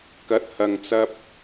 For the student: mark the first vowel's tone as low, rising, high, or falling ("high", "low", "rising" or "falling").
rising